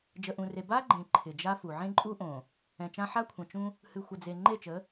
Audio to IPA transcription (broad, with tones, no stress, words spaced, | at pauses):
d͡ʒə˨ʔũ˨re˨ ba˦ɡ͡ǃẽ˨ ǃʰɪ˨d͡ʒa˦fu˨ ʕẽ˦ǃʼu˦ʔõ˨ | ɛ̃˨t͡ʃã˦ ħa˦kʷʰə̃˨t͡ʃũ˦ | hɨ˨xʷə˨d͡ze˨ ŋ͡ǃe˦˨t͡ʃə˨˦